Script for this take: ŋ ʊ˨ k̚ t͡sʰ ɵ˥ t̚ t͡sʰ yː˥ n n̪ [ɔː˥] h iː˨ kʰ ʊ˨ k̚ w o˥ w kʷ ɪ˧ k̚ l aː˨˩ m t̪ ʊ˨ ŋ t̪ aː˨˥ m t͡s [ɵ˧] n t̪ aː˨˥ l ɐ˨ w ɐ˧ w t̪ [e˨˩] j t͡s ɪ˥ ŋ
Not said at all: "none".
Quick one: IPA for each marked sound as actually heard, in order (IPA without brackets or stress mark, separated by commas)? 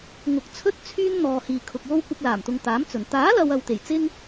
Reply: ɔː˨, ɵ˨˩, e˨˩